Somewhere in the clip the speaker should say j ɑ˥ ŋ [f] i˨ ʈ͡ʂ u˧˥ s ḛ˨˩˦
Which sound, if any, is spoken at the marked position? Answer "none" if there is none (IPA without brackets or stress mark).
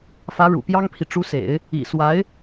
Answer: pʰ